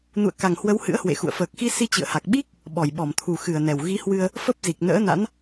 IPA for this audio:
n ṵ˧˨ ə̯ k a˨˩ ŋ h w ə˨˦ w h ɨ̰˧˥ ə̯ h w ḛ˧˨ x ṵ˧˨ ə̯ f əː˨˩ k̚ x i˧ s i˧ t͡ɕ ɨ̰˧˨ ə̯ h a˨˩ k̚ ɓ i˦˥ k̚ | ɓ ɔ˧˩ j ɓ ɔ˧˩ m t̪ʰ u˨˩ x ɨ˧˩ ə̯ n ɛ˨˩ w ɣ i˨˦ h w ɨ˧ ə̯ | f ə˦˥ p̚ z i˨˩ k̚ n ə̰ː˧˥ n a̰˧˥ n

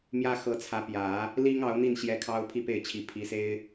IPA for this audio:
m j ä˥ x ɤ˧˥ t͡sʰ ä˧˥ p j ä˨˩˦ | l i˥ ŋ ɑ˧˥ ʊ̯ n̪ i˥˩ n ɕ j ɛ˧˥ kʰ ɑ˥ ʊ̯ pʰ i˥˧ p e˥˩ ɪ̯ t͡ɕʰ i˧˥ pʰ i˧˥ s e˥ ɪ̯

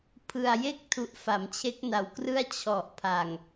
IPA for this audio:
pʰ ɯ˨˩ a̯ j e˥˩ k̚ tʰ u˨˩ ʔ f a˩˦ m t͡ɕʰ e˦˥ k̚ n a˨˩ w k r ɯ˥˩ a̯ t͡ɕʰ ɔ˨˩ ʔ pʰ a˨˩ ŋ

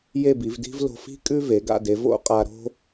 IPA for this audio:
j e˥˧ b i˩˧ v d i̤˥ v l o̤˧ f i̤˥ kʼ ʉ˥ v e˩˧ ɡ a̰˥˧ d e˩˧ v o̰˥ qʼ a˧ ɾ o̤˥

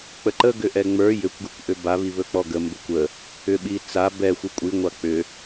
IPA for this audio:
k͡p ə ǃ ə ɡ ʏ ʔ ɛ ŋ͡m ə˞ j ʏ kʷ ɡ ʏ kʷ ʔ ʏ b a β i β ɵ k͡p ɔ ɡ ə m b ɘ kʷ ə | ʏ ɓ i t͡s a b ɛ xʷ i kʷʼ i ŋʷ a k͡p ʏ

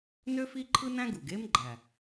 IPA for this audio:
n ø˥ f i˥ ǃʰ ɯ˥ n æ̃˥ ɡ u˨˩ ɡ e˥ m ɡ͡ǃ æ˨˩

